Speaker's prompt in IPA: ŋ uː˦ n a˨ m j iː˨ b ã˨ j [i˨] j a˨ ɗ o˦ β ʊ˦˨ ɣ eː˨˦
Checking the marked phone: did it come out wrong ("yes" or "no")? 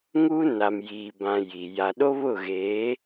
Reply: no